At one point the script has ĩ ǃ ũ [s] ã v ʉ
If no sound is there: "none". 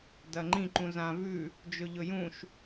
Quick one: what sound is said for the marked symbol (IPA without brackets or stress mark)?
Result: z